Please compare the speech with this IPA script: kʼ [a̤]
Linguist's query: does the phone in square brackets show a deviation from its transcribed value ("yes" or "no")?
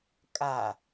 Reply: yes